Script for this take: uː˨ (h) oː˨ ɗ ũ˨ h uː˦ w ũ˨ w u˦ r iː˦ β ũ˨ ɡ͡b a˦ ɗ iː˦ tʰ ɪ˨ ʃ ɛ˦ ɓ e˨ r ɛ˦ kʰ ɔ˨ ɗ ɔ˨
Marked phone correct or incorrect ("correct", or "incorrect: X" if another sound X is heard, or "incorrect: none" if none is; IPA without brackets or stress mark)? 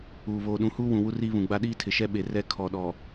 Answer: incorrect: β